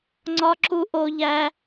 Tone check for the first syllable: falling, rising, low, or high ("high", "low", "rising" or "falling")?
high